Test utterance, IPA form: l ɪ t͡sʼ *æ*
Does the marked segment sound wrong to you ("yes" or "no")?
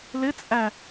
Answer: no